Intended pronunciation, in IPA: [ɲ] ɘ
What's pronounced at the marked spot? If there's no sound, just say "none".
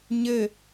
ɲ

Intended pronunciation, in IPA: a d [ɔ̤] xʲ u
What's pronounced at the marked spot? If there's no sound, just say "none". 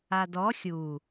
ɔ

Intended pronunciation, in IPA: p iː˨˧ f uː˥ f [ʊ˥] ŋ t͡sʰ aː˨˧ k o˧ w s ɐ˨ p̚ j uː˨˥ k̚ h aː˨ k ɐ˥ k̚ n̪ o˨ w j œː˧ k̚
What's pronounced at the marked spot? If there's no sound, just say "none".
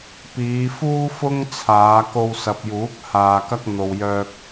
ʊ˥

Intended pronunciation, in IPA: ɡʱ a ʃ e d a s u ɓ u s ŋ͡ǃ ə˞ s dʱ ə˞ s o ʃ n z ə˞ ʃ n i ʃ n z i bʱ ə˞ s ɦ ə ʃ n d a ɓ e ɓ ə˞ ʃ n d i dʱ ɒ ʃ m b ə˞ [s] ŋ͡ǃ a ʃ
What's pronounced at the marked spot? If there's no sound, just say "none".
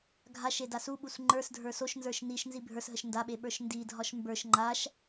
ʃ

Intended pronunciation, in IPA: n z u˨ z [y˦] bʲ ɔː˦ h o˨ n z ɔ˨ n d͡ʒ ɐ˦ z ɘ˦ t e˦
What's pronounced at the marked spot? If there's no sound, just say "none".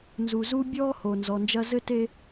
u˦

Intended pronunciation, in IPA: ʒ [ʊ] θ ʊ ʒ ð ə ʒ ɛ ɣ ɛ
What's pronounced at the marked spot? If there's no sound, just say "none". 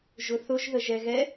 ʊ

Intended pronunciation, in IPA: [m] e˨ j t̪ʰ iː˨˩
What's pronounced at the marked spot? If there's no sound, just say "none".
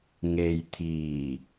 ŋ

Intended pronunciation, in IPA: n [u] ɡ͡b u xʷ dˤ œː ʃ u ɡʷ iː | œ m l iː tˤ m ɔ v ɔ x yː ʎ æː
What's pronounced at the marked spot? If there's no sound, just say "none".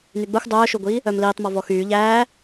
y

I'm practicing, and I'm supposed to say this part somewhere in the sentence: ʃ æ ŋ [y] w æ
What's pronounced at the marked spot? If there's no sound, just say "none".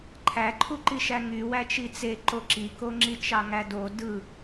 y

